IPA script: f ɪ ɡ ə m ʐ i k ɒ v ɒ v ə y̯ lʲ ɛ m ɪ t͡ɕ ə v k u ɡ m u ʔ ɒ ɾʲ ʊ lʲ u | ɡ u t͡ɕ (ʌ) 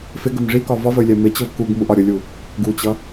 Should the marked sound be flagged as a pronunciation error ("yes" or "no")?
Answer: no